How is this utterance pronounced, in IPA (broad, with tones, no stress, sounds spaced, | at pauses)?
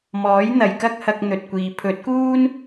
m ɔː˨˥ j n̪ ɐ˨ j k ɐ˥ k̚ h ɐ˧ k̚ n̪ ɵ˨ t̚ kʷ iː˨ pʰ ɵ˨˥ t̚ k uː˥ n